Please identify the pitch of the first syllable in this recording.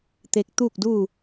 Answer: rising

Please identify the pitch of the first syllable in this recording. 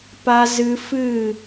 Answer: high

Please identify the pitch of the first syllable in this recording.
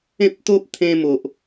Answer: high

